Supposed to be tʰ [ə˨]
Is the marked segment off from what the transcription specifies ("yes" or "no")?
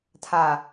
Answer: yes